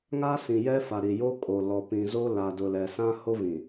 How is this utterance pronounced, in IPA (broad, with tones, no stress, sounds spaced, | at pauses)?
ŋ a˦ s ĩ˨ j ɛ˦ f a˨ ɾ i˨ j o˦ kʼ o˨ l ɔ˨ p ĩ˨ z o˦ l a˨ d ʊ˨ l ɛ˨ s ã˦ h o˦ v ĩ˨